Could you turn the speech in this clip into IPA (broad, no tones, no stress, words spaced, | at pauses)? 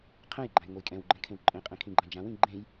qʰɛ̃jɡ͡ǃãj ŋʷejkʼɛ̃wɡ͡ǃɛ̃ kʰẽwǃʼẽqʼẽ kʰĩɡ͡ǃãd͡ʒãwĩ ɡ͡ǃẽj